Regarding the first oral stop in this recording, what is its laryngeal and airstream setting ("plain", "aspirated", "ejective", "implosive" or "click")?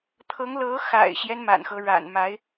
aspirated